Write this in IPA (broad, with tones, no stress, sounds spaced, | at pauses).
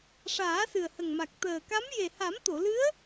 ʂ aː˨˩˦ s ɨ˨˩ ə̯ h ə˨˩ ŋ m a˨˩ k̚ t̪ əː˨˩ k a˧˥ m j e˨˩ h a˨˩˦ m t̪ o˨˩˨ l ɨ˧˥ ə̯